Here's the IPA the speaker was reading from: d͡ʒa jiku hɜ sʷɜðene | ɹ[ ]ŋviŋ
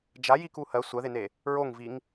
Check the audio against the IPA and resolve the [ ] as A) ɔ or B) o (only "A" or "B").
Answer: B